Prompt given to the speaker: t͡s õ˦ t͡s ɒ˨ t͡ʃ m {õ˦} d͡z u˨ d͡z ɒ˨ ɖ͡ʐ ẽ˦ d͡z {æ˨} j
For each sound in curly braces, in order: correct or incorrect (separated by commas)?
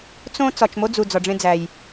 incorrect, correct